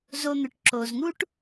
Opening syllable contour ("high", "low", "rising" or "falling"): low